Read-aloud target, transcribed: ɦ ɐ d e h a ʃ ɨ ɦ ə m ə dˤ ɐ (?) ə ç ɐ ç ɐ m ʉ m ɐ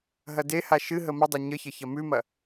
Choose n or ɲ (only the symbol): ɲ